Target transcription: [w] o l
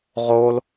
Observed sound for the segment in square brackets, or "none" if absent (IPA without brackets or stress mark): ʁ